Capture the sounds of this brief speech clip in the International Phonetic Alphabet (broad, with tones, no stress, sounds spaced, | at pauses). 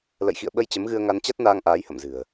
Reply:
l ə̰˧˨ j x ḭ˧˨ ə̯ ɓ ə˧ j t͡ɕ ə˨˦ m ɣ ɨ˧ ə̯ ŋ a˧ n t͡ɕ a˦˥ t̚ n aː˧ ŋ ʔ aː˨˦ j h ə̰˧˨ m z ɨ̤˨˩ ə̯